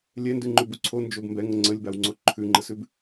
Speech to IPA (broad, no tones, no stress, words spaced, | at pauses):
lʲɛndʉŋ͡ǃʉbu ǀʰond͡ʒob mbɛŋə ŋ͡ǀəlʲbawŋ͡ǀo ǃʰʉŋ͡ǃəsʉb